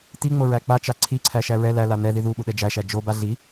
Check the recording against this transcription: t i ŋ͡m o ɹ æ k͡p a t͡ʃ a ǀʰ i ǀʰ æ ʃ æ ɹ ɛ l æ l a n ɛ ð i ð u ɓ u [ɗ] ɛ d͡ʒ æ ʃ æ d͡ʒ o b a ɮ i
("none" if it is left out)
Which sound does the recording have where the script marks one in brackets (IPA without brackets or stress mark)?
ɗ